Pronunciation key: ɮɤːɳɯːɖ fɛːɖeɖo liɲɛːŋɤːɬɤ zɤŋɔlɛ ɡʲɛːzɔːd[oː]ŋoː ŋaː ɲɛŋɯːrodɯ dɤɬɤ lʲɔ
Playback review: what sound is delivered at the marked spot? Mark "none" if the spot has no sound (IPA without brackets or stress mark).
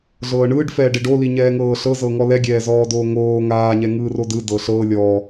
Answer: oː